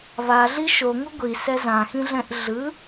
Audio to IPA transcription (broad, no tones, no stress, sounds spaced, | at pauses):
β a ɮ i ʃ o ŋ u ɡʷ i s ɛ z ã x ĩ ɮ ɛ̃ ʔ ɮ ɯ